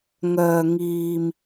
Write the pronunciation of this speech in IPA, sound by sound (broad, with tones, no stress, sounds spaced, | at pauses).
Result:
ŋ œː˧ ŋ iː˧ m